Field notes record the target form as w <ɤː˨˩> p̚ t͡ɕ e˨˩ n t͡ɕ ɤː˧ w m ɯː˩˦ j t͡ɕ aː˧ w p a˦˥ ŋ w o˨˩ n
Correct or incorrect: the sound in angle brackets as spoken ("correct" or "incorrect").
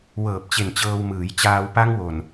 correct